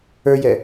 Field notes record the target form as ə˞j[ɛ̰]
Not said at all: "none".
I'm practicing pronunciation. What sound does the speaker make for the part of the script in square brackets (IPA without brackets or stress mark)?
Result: ɛ